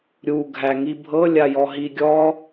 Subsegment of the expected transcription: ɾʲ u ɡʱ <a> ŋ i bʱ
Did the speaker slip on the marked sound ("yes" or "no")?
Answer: yes